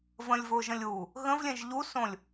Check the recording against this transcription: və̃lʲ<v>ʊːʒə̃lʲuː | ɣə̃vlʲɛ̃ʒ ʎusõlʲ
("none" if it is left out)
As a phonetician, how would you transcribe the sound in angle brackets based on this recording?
v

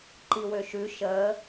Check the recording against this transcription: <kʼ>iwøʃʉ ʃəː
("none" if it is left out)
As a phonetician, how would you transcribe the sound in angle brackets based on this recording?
ǃ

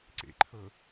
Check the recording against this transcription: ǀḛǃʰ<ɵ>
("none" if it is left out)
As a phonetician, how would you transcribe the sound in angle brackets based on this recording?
ɤ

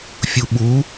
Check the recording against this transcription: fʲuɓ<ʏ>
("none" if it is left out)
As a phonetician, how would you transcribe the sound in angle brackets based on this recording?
u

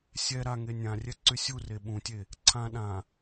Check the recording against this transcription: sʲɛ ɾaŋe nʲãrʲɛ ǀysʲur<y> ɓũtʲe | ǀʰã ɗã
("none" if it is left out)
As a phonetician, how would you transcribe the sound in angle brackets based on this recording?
e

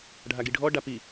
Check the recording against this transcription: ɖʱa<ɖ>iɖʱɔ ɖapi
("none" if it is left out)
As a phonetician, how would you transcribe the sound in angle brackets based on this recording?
ɡ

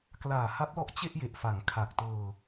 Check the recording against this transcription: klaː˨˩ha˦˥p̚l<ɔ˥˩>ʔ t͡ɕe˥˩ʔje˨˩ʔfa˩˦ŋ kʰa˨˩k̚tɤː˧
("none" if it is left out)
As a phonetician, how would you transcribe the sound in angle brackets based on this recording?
ɔ˦˥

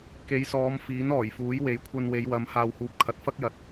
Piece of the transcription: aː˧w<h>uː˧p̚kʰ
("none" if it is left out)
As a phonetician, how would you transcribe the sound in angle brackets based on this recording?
h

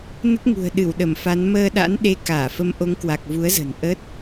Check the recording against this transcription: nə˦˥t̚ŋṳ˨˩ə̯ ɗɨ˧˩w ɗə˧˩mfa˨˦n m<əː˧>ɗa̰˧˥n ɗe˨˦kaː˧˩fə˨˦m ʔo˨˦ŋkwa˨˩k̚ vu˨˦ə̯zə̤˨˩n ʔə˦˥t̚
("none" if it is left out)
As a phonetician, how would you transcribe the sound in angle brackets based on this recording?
əː˧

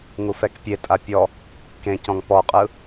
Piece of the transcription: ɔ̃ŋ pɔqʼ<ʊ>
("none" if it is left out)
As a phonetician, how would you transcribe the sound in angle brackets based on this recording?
ɯ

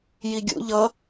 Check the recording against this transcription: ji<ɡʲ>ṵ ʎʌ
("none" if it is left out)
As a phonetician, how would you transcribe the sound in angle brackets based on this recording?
ɡʲ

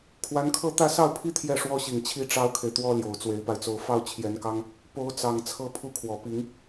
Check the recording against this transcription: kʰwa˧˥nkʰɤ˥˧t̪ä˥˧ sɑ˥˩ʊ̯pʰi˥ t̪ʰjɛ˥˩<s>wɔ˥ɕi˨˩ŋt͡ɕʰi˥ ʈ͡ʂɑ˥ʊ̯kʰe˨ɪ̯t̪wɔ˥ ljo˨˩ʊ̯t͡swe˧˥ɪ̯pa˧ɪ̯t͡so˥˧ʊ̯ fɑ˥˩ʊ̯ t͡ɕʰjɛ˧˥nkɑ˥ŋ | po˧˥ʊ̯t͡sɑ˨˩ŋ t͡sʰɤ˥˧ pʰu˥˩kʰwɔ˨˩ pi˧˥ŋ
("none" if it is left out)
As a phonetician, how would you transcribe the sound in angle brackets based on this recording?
ʂ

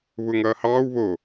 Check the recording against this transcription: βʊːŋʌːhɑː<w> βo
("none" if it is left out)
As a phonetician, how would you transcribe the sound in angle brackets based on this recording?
w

